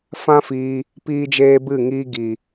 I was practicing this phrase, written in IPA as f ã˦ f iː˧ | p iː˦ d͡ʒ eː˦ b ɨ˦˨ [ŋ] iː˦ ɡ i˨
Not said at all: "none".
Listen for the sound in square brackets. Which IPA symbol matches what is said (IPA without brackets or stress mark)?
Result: ŋ